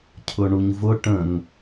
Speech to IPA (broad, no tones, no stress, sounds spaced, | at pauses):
cʰ ʊ ɳ u ɲ v ʊ ʈ ə̃ ŋ